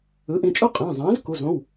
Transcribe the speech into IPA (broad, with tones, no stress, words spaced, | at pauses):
ɯ˩˥ʔĩ˩˧˩t͡ʃʼu˥˨ qʼẽ˩˧˩zˤẽː˩˥z ku˩˧˩zõ˩˧˩w